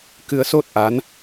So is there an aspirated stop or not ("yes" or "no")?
no